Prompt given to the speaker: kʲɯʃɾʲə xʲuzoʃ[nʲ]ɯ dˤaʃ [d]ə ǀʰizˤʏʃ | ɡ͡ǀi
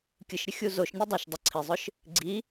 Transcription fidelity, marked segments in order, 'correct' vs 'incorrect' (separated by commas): correct, incorrect